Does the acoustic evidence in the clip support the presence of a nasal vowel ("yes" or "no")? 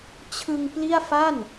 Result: no